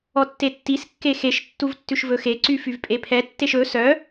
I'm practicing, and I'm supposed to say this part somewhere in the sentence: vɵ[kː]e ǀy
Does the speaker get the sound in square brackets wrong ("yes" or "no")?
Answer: yes